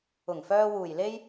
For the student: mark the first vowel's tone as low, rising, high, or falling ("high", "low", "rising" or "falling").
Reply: low